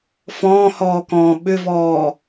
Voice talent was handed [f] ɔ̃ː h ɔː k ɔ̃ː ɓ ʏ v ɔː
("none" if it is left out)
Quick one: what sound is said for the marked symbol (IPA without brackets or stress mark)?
f